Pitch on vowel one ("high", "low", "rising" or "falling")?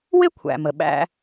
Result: high